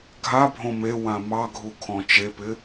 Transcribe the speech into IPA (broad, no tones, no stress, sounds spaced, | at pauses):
ɡʱ a bʱ õ m e w ã m ɑ ɡʱ u kʰ ɔ̃ t͡ʃ e p ɪ